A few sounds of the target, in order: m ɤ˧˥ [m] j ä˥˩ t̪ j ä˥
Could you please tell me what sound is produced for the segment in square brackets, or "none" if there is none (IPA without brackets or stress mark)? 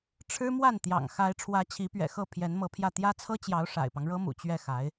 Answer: pʰ